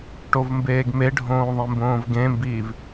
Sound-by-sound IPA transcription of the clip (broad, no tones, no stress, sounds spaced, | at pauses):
ʈ o v m b eː ɡ m e ɖʱ õː ðˤ ẽ m b õː v ɡ ẽ m b iː v